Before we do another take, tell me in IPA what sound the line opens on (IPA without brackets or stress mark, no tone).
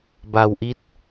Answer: b